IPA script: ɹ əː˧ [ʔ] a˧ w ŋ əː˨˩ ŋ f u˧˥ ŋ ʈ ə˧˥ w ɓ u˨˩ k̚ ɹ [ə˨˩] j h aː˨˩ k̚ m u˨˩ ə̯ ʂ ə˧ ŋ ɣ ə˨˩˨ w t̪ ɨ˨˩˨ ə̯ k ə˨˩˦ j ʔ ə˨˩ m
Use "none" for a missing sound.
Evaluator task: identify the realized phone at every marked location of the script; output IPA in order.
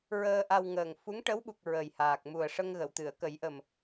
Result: ʔ, ə˨˩

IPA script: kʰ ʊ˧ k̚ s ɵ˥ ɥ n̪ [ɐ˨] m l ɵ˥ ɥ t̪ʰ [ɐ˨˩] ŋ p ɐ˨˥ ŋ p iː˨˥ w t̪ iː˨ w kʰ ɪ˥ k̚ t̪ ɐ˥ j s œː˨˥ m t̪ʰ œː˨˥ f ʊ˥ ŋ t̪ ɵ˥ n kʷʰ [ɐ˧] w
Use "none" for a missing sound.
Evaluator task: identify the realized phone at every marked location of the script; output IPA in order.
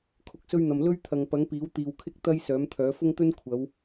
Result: ɐ˨, ɐ˨, ɐ˨˧

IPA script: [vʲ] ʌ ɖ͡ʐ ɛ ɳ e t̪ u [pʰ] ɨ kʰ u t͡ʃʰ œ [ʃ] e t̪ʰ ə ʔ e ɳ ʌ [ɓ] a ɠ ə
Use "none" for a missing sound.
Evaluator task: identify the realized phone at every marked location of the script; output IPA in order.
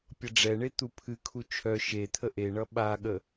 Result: pʲ, pʰ, ʃ, ɓ

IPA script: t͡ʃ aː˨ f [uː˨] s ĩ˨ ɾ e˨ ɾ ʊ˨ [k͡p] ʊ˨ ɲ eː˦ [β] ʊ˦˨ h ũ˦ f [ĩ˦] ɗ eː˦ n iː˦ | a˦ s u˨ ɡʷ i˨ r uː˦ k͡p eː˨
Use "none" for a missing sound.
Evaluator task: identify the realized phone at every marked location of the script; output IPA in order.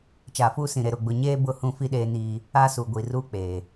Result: uː˦, ɡ͡b, b, i˦

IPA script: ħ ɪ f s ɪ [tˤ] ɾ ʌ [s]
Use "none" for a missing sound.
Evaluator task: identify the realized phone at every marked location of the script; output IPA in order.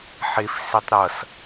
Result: tˤ, s

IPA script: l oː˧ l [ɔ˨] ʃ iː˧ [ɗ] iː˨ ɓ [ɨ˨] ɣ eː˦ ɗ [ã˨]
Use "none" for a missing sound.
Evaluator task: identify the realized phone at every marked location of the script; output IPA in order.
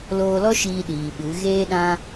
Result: ɔ˦, ɗ, ɨ˨˦, ã˦

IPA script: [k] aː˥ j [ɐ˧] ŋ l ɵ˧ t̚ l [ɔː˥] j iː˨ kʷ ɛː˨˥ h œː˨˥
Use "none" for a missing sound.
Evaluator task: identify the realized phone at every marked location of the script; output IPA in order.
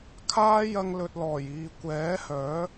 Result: kʰ, ɐ˧, ɔː˨˩

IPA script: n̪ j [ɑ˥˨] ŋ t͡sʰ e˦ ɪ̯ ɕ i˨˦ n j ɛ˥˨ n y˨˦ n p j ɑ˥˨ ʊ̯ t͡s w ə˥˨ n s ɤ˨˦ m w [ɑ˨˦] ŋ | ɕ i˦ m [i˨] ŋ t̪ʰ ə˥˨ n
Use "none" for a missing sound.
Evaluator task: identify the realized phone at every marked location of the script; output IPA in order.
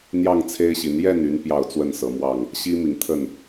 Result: ɑ˥˨, ɑ˥˨, i˨

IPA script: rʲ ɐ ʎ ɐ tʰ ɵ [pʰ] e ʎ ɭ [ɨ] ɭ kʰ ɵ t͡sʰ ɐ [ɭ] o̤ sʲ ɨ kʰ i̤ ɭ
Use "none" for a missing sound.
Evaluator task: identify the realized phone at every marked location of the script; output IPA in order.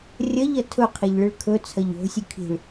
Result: qʰ, ɨ, ʎ

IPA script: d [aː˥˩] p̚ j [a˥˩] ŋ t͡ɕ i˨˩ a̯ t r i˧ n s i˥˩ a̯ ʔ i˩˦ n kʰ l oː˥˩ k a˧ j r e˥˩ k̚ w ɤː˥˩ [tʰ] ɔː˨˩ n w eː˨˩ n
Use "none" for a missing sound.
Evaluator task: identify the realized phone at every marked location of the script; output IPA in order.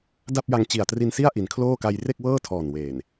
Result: a˥˩, a˧, tʰ

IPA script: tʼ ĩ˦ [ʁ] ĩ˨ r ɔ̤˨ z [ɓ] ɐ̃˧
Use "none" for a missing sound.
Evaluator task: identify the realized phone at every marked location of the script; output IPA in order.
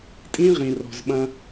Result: ʁ, ɓ

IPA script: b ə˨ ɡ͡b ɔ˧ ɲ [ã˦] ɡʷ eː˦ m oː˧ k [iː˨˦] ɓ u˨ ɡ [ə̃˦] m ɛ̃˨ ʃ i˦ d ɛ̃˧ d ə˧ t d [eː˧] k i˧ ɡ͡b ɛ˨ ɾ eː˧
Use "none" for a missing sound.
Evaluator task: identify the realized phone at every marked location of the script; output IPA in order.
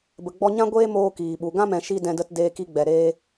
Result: ã˦, iː˨, ã˦, eː˧

